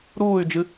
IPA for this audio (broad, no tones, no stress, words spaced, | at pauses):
ɾuːy̯d͡ʒɨ